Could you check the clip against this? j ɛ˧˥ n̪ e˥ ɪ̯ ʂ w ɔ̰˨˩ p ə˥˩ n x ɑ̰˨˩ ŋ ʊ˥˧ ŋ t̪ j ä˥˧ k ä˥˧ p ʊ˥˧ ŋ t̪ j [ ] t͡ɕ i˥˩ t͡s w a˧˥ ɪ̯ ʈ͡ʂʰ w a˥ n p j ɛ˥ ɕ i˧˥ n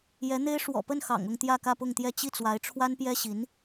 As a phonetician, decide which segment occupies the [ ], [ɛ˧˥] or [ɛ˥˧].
ɛ˥˧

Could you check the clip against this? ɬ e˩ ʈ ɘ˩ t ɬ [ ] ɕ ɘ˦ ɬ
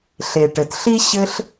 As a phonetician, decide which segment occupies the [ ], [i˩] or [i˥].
i˥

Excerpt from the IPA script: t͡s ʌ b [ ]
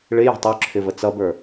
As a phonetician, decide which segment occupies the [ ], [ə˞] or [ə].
ə˞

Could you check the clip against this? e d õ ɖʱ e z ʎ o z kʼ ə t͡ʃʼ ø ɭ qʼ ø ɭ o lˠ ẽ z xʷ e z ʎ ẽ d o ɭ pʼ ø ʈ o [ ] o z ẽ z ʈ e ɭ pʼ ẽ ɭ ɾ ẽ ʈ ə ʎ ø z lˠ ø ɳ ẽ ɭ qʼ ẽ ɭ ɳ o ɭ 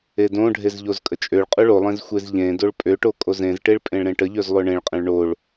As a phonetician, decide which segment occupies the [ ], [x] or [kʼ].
kʼ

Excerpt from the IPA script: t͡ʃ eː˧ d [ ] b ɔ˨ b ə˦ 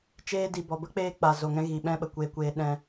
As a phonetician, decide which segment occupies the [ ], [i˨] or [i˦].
i˨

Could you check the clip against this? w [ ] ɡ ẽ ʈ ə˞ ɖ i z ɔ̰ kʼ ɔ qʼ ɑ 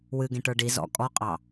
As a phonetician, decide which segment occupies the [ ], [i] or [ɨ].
ɨ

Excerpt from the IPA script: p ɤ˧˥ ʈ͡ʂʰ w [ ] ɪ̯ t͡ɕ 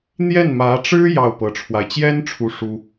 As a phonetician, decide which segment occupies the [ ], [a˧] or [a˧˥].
a˧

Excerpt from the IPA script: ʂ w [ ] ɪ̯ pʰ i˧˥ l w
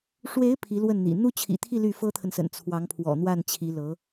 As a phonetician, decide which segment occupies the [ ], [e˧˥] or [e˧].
e˧˥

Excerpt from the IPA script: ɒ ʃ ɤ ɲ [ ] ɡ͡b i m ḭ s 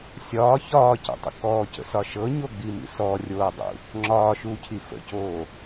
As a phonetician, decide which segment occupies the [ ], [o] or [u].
o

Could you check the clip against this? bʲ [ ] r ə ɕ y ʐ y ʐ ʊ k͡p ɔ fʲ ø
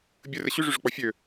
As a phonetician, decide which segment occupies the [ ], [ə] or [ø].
ə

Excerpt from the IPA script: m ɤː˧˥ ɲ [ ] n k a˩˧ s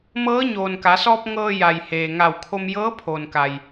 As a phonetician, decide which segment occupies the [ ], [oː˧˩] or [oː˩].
oː˩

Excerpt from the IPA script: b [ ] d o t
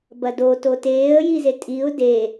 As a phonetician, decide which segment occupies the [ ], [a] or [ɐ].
ɐ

